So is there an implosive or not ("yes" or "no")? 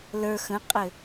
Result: no